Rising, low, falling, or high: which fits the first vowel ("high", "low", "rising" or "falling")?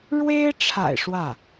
high